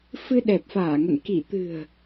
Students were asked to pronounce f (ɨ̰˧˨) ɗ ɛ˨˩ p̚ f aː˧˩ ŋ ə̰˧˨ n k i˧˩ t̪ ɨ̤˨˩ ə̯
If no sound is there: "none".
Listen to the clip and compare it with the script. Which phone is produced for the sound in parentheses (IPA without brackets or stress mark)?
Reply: ɨ˧